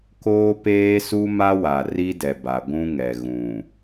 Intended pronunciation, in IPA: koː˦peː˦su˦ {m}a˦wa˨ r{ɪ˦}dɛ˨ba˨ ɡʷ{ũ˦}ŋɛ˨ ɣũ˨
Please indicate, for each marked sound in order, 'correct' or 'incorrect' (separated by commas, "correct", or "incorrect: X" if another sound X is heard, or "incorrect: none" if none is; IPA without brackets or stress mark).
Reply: correct, incorrect: i˦, correct